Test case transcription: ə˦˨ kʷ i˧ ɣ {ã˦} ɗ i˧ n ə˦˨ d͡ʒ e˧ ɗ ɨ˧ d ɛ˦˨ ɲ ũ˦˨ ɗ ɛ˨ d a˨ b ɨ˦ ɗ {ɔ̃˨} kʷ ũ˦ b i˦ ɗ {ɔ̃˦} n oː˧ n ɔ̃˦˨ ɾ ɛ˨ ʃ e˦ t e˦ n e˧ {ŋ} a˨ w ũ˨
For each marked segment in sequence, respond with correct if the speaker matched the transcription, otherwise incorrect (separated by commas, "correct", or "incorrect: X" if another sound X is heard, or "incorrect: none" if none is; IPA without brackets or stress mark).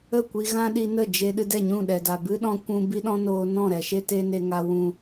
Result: correct, incorrect: ɔ̃˧, correct, correct